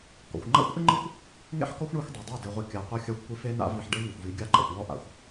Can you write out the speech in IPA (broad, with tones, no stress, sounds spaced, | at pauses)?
k ɔ̰˨ xʷ ŋ͡ǃ a̰˦ xʷ ʔ ɪ˦ ŋ͡ǃ i˦ xʷ | ŋ ḛ˦ ħ k ɔ˦ xʷ ɳ i˦ xʷ dˤ e˨ dˤ a˦˨ d e˨ ʁʷ i˨ kʲ a˨ qʷ a˦ xʲ a˦ xʷ kʷ i˦ f e˦ n a̰˦ v i˨ ħ ɖ e˦ ŋ ɪ˨ xʷ v i˨˦ ɡʲ a˦ ǃ a̰˨ xʷ w ɔ˦ ʔ a̰˦ xʷ